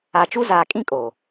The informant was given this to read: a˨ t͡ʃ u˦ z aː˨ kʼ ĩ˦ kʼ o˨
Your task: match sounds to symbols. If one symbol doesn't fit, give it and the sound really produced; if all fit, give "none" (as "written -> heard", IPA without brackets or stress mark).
none